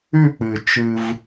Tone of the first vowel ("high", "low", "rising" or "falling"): falling